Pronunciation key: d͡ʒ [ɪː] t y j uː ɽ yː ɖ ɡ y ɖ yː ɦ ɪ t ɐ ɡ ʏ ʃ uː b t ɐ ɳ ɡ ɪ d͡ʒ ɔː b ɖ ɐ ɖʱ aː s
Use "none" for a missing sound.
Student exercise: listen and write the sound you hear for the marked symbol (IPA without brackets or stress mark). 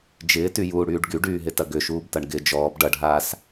ɪː